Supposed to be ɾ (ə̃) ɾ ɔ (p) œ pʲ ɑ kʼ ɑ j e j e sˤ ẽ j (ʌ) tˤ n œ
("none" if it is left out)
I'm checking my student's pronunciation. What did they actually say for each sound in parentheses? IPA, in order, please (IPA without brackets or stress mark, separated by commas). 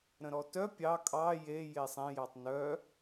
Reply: ə̃, t, ɑ